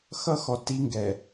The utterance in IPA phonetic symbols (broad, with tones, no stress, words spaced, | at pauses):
xʌ˦xɔ˨ ti˦ŋɡɛ˨